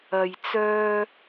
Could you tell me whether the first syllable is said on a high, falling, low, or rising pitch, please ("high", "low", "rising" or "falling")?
low